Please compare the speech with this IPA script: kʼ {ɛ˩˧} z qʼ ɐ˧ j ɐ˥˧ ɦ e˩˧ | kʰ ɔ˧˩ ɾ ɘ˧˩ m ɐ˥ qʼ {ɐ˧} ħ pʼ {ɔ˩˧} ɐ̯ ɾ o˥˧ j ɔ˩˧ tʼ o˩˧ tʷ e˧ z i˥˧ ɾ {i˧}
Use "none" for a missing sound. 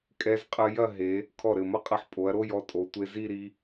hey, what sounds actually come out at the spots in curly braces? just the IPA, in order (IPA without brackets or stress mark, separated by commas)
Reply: ɛ˧, ɐ˧, o˩˧, i˧